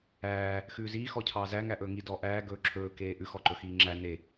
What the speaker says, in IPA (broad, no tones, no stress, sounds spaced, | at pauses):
æː | x ʉː z iː x ɔ cʰ ɑː z æ ŋ æ ʔ ɵː ŋ i d ɔ ʔ æː ɡ ɵː ǁʰ ɵː k eː ʔ ʉ x ɔ ǃ ɵ x iː ŋ͡ǁ æ n e